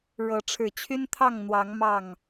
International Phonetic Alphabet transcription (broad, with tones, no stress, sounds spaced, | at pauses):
ɻ ɤ˨˦ ʈ͡ʂʰ ɻ̩˨˩ t͡ɕʰ y˦ n t̪ʰ ɑ˥˨ ŋ n̪ w ɑ˨˦ ŋ m ɑ˥˨ ŋ